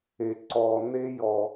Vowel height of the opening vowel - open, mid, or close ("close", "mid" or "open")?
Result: mid